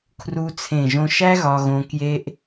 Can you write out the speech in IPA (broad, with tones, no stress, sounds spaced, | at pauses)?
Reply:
kʰ r u˧ t͡sʰ ẽ˧˩ ʒ õ˧ ʃ æ˥ ɣ ɒ˧ ɣ õ˧ k j e˧ ʔ